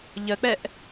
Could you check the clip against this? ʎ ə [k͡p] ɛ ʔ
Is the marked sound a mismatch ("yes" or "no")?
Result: no